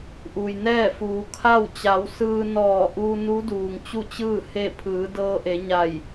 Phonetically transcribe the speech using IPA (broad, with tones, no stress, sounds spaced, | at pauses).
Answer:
ʔ u˩ j n ɛː˥˨ f uː˩˧ kʰ a˥˨ w t͡ɕ a˩˧ w s ɯː˧ n ɔː˧˩ ʔ uː˧ n u˧˥ d uː˩ ŋ t͡ɕ u˥˨ t͡ɕ ɯː˥˨ h e˥˨ pʰ ɯː˩˧ d ɤː˧ ʔ e˩˧ ɲ a˧˩ j